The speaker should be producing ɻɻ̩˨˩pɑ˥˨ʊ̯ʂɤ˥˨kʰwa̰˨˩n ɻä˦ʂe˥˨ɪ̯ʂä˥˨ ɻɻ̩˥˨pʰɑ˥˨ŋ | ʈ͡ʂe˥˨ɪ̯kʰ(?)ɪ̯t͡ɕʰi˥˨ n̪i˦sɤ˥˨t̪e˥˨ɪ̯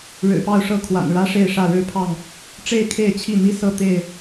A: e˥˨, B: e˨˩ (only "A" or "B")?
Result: A